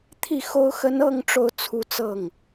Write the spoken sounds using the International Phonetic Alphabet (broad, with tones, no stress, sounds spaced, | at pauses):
t̪ʰ i˥˩ x o˥ ʊ̯ x ə˥ n ɤ˥˧ ŋ ʈ͡ʂ o˥˧ ʊ̯ t͡sʰ u˥˧ t͡s ɤ˥˩ ŋ